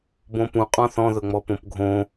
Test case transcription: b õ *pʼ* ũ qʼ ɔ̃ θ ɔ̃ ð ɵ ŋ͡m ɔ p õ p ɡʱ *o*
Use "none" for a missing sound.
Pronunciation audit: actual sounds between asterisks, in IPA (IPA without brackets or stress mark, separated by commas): p, õ